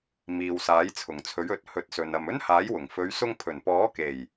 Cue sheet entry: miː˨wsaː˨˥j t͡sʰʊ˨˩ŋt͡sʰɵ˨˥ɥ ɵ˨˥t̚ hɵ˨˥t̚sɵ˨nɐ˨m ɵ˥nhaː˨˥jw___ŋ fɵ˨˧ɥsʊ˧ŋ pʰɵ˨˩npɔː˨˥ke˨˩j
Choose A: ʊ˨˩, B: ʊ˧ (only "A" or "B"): A